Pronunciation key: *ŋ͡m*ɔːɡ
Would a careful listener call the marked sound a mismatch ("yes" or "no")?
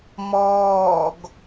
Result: yes